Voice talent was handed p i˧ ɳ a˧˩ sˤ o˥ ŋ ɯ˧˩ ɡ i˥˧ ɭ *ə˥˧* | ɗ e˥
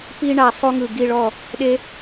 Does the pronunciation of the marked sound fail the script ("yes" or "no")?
yes